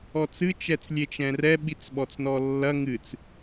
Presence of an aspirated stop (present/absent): absent